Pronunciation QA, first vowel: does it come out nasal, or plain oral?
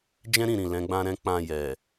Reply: nasal